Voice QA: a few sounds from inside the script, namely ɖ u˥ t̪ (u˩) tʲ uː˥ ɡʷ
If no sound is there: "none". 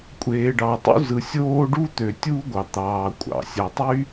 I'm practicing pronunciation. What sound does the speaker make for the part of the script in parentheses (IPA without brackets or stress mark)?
ø˩